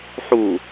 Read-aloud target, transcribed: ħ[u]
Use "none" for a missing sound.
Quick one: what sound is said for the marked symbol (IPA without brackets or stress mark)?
u